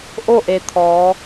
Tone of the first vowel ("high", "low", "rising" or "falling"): falling